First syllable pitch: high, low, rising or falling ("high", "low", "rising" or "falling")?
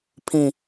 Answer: low